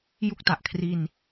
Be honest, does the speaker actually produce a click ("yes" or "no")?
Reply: no